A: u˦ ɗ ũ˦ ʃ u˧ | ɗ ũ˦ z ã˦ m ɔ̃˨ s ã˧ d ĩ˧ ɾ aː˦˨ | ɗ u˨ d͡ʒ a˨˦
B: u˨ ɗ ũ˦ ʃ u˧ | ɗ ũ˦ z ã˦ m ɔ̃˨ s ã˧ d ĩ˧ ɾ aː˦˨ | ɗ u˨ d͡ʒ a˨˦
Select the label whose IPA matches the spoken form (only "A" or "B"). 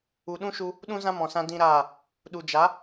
B